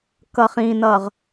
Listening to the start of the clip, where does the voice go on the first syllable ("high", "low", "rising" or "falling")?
low